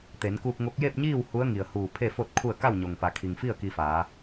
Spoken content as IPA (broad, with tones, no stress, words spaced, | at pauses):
t̪e˩˧nkuː˧k̚ŋo˧˥k̚ je˥˨p̚ɲiː˥˨w hu˧˥ə̯ŋi˩ə̯huː˧˩ pʰe˥˨fo˥˨t̚kʰu˥˨ə̯ ka˥˨wɲo˩ŋpa˩˧ kʰi˩ŋfi˥˨ə̯ ki˧faː˩˧